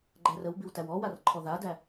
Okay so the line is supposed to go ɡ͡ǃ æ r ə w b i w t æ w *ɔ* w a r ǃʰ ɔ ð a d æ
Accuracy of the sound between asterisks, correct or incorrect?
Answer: correct